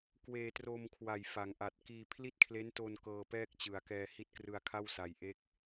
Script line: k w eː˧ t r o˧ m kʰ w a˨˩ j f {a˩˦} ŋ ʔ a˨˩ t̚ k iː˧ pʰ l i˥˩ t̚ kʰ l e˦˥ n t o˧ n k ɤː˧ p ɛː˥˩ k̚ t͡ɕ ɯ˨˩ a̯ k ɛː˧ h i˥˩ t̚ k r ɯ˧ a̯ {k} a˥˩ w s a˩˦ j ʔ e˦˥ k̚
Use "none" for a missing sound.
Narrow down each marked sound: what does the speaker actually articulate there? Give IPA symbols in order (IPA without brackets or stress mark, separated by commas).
a˩˦, kʰ